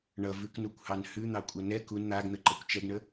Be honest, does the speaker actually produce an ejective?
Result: yes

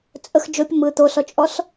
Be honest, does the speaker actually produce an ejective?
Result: yes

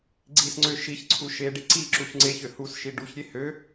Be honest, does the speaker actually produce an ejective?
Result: no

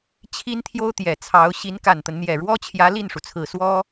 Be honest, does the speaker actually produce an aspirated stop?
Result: yes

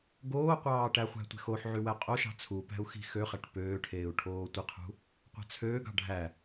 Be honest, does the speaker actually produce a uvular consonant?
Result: yes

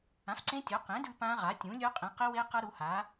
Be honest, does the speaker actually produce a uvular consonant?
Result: yes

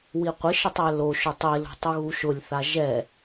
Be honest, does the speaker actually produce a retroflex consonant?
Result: no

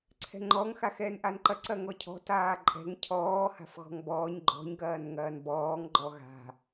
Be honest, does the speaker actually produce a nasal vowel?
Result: no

